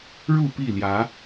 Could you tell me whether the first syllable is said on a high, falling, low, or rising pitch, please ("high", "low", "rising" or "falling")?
falling